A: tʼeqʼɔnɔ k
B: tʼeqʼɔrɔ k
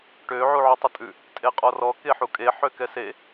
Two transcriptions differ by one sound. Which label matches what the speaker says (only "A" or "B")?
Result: B